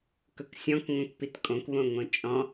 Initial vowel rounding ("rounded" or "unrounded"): rounded